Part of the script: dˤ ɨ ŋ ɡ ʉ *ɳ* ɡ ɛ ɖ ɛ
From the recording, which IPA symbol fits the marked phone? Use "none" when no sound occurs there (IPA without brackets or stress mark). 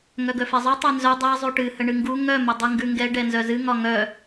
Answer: ŋ